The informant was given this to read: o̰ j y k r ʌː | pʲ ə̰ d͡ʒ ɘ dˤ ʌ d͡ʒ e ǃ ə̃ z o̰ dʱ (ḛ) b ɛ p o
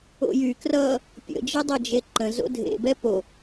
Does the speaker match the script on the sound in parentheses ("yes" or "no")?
yes